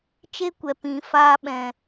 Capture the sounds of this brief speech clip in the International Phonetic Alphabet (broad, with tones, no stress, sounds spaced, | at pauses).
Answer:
t͡ʃ e˦ kʷ ɛ˨ p ĩ˨ f aː˧ ɓ ɛ̃˨